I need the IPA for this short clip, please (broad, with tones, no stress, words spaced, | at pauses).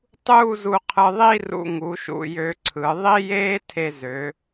tˤuː˥˧zu˧qʰɯ˧ðˤi˥˧ rṵ˧ŋu˩˧ʃṵ˧˩ jø˧ǀʰɯ˩˧ ðˤi˥jeː˥ tʰe˧zø˩˧